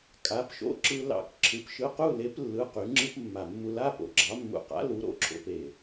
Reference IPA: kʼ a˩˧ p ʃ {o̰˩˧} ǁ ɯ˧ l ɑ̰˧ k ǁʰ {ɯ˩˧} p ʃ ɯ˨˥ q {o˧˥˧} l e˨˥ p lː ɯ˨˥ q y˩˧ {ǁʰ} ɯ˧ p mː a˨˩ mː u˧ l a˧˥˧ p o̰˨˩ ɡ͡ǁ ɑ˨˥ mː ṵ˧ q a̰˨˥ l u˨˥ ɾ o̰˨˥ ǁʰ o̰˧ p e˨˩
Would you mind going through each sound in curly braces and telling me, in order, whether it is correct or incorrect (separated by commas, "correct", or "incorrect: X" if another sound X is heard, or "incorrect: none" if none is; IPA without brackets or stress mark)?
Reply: incorrect: o̰˧˥˧, correct, incorrect: u˧˥˧, incorrect: ŋ͡ǁ